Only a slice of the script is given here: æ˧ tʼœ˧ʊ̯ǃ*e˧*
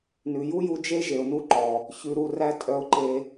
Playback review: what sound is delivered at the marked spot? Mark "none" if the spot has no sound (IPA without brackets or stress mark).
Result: e˧